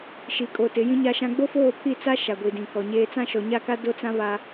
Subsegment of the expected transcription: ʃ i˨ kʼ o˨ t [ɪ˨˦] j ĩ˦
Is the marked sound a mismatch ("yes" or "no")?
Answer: no